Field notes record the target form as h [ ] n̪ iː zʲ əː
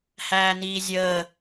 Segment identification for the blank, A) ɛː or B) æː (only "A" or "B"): B